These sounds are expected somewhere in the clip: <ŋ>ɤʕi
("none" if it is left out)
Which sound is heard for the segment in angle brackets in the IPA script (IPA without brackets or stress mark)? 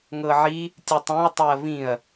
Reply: ŋ